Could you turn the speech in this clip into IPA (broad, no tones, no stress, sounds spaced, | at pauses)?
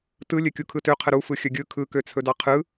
t ɯ lʲ ø kʲ u kʰ ɯ t ø qʰ ə ɾ u f ɯ xʲ ɵ ɡʲ ɯ kʰ ɯ k ø t͡sʰ ɵ d ɑ qʰ ɯ